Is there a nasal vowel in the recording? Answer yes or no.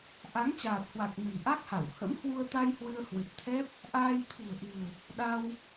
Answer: no